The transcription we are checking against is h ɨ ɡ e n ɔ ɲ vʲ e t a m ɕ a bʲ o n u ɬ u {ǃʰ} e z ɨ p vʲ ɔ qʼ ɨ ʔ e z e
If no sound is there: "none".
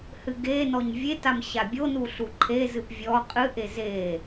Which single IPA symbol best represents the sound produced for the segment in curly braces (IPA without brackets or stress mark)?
ǃʰ